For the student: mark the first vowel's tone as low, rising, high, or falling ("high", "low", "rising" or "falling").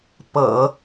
low